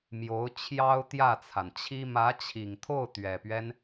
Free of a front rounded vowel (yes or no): yes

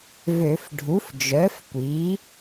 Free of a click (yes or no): yes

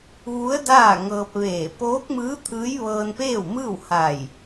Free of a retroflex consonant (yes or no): yes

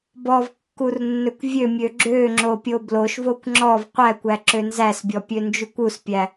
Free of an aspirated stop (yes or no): yes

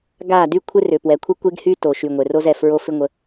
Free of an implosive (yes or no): yes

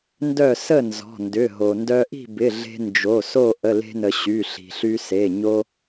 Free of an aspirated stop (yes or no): yes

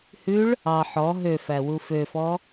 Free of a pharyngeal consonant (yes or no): no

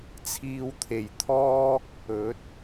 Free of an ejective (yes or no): yes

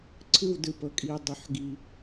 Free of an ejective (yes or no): no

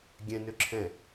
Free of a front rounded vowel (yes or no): no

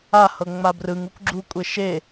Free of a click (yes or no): no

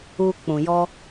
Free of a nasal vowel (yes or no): no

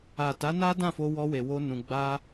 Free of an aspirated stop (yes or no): yes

